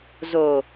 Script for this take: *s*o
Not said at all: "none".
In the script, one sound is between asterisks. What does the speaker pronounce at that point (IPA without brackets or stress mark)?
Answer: z